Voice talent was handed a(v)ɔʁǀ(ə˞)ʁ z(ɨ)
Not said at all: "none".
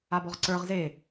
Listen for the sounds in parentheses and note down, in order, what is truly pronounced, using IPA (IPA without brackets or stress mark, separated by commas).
b, ə˞, e